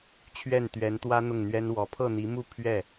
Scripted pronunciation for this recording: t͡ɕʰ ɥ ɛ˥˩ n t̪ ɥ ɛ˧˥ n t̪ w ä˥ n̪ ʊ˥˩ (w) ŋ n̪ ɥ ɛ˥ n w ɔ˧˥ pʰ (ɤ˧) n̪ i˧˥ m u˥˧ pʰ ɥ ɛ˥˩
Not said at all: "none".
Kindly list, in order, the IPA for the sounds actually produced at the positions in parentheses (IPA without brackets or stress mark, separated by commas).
none, ɤ˥˩